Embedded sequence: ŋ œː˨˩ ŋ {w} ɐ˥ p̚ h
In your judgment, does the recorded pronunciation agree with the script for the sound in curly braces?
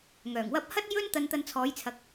yes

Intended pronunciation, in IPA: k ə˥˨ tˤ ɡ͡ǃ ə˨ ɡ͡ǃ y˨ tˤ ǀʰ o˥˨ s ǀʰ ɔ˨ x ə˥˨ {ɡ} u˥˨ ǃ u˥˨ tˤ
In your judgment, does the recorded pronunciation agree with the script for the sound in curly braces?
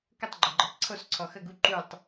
yes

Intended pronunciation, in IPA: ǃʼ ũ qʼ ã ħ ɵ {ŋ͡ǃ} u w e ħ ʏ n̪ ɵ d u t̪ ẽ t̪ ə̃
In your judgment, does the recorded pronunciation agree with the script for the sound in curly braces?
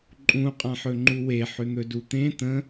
yes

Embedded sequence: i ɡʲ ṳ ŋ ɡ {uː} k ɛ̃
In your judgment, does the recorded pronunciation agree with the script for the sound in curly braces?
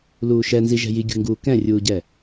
yes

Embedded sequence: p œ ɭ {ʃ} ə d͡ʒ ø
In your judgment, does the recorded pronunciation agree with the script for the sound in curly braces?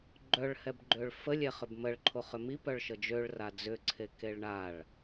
yes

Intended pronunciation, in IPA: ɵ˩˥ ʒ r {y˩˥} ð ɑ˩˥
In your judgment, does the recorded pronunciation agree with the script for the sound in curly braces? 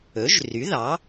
yes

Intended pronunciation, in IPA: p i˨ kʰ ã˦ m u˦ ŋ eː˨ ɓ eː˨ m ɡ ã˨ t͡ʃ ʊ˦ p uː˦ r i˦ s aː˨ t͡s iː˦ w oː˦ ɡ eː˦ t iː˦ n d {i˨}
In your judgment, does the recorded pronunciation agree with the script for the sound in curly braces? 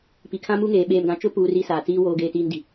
yes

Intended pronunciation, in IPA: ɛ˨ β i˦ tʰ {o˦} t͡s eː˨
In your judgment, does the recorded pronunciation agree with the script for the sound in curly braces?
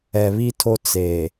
yes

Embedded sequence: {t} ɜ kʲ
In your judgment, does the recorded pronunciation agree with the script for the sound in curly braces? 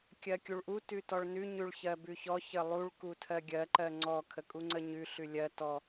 no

